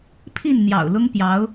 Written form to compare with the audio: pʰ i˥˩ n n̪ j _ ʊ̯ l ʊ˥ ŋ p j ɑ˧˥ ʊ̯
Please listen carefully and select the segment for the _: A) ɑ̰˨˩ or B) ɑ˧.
A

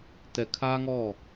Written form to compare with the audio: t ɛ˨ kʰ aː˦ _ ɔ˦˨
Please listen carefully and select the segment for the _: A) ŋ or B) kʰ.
A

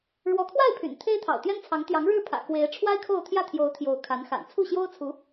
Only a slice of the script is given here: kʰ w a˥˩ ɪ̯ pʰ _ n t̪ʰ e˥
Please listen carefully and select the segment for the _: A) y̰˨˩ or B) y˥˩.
A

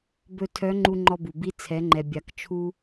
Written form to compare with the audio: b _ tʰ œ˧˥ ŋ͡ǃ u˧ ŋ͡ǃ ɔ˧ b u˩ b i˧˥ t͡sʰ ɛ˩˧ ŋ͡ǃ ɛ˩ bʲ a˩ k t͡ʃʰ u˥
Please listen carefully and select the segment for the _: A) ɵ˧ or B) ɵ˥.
A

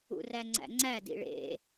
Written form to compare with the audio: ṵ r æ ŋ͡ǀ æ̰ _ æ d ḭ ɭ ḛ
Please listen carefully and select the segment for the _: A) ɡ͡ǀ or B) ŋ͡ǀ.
B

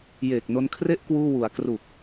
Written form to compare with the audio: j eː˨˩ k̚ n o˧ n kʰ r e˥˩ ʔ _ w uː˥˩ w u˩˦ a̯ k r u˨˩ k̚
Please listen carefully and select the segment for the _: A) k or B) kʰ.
A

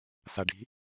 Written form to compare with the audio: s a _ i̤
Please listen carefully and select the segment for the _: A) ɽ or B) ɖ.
B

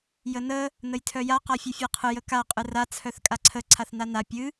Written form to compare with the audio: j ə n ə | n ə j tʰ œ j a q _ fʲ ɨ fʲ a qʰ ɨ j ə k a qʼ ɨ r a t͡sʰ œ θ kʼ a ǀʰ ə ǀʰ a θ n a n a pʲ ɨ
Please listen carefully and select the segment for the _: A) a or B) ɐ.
A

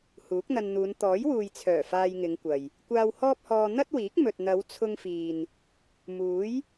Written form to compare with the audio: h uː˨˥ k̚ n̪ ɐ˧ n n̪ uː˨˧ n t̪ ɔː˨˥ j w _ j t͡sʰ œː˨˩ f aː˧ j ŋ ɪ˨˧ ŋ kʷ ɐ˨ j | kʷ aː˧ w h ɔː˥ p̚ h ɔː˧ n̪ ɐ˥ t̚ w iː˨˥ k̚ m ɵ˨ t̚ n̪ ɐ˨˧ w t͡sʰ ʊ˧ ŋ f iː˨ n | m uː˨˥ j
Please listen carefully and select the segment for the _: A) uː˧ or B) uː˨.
B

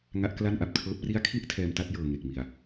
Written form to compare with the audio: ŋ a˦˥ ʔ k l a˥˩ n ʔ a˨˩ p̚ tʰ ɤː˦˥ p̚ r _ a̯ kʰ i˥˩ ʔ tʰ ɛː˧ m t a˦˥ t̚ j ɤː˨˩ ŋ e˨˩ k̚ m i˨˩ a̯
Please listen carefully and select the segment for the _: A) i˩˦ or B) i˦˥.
B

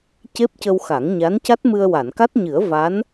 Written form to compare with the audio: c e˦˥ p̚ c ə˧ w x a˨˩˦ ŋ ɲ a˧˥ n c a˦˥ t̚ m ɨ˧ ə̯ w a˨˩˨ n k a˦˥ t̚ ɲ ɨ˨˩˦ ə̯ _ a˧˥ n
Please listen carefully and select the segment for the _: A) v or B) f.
A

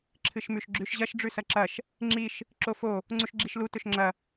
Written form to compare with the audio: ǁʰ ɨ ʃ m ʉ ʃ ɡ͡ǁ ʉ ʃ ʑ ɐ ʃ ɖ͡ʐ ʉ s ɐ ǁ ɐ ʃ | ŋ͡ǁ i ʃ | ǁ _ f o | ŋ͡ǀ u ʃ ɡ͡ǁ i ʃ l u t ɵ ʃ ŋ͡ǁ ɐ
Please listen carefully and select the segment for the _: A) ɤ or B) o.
B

